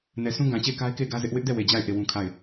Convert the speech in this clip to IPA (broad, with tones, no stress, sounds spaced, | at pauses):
n ɛ˨ sʰ ũ˦ ɡ ã˨ t͡ɕ e˦˨ ɪ̯ k a˦ ɪ̯ k e˦˨ ɪ̯ ɡ ä˦ z ɪ˦ ʔ w ɪ˦ ʔ d ɛ˦˨ w e˨ d͡ʑ a˦˨ ɪ̯ ʔ e˦˨ w ũ˦ kʰ a˦˨ ɪ̯